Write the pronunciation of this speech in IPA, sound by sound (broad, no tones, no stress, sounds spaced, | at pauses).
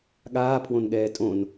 ɠ aː pʰ w õ n ɠ ɛː tʼ õ n